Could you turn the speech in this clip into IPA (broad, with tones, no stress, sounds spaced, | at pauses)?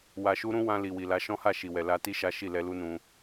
w a˨ ʃ u˧ ɾ ũ˧ w ã˧ l i˨ w i˨ l a˨˦ ʃ ɔ̃˦ h a˦˨ ʃ i˨ w ɛ˨ l a˧ t i˦ ʃ a˦ ʃ i˦˨ l ɛ˧ l u˦ n ũ˧